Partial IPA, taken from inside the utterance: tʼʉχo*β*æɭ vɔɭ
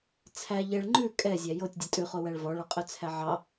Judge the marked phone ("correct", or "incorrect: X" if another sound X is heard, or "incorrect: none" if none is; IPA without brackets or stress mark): incorrect: w